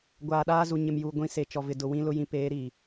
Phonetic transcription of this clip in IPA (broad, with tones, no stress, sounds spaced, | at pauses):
ɡʷ aː˨ ɗ aː˦ z u˨ ɲ ɪ˨ m j u˨ ɡʷ ĩ˨ s e˨ t͡ʃ ɔ˨ v ɪ˨ d ʊ˨ w ĩ˦ l ʊ˦ j ĩ˨ p eː˨˦ ɾ i˨